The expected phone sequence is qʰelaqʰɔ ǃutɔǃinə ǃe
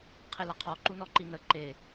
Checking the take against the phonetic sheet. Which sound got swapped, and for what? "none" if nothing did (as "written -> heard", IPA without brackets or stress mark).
t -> n